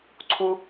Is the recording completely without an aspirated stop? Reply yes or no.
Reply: no